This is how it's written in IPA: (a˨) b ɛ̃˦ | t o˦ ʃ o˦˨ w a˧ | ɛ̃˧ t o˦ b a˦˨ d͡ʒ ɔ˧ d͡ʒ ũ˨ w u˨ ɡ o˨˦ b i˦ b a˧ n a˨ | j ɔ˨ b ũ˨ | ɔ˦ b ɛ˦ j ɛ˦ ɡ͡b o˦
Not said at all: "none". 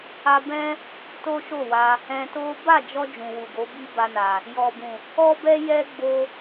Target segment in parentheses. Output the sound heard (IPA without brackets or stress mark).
a˧